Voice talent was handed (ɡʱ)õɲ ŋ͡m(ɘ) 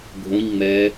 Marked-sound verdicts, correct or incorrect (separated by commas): correct, incorrect